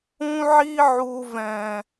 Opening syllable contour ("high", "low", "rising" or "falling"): high